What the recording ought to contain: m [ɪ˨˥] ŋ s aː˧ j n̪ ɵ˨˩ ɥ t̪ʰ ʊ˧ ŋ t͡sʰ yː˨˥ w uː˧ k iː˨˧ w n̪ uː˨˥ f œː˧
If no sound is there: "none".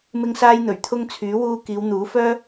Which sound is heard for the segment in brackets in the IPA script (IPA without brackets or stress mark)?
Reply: ɪ˧